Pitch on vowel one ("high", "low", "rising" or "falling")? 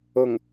low